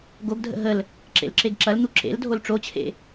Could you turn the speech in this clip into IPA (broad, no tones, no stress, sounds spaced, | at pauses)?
ɡ o ɡ dʱ ə̰ ɦ ə l | ǁ ḛ l ǁ e ɡ ǁ ɐ l n̪ u ǁ ḛ l dʱ o l ʈ͡ʂ o t͡ɕʰ ḛ